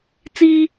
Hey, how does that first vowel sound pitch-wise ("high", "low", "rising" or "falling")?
high